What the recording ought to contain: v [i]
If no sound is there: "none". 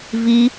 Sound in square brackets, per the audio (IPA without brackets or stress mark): i